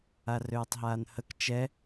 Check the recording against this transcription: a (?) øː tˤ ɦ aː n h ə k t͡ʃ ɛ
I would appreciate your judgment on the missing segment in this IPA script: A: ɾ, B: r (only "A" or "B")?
B